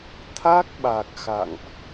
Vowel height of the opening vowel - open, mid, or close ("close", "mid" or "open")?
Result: open